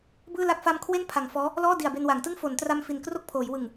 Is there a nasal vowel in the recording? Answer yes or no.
no